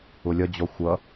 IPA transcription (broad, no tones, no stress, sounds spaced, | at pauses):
ʊ lʲ ʌ d͡ʑ ɔ xʷ ʌ